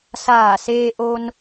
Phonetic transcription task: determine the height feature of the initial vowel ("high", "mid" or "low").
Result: low